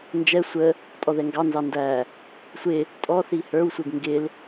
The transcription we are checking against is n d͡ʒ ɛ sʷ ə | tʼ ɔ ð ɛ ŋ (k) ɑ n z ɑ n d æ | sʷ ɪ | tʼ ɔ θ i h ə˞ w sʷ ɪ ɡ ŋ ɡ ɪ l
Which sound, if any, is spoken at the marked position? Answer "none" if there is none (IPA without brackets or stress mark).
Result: ɡ